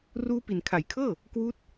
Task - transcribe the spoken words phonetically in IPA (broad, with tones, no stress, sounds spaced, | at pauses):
r uː˦˥ p i˨˩ n kʰ a˩˦ j kʰ ɤː˥˩ | k w uː˦˥ t̚